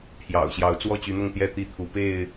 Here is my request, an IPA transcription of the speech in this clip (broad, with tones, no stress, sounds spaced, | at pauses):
pʰ j ɑ̰˨˩ ʊ̯ ɕ j ɑ˨˦ ʊ̯ t͡s w ɔ˥˨ t͡ɕ y˨˦ n̪ ʊ˥˨ ŋ t̪ j ɛ˥˨ t̪ i˥˨ t̪ʰ u˨˦ p e˥˨ ɪ̯